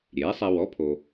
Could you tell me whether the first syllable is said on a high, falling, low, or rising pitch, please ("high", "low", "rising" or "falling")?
rising